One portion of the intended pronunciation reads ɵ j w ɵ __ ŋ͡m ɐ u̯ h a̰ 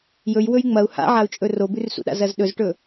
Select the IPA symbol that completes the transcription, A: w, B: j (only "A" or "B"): B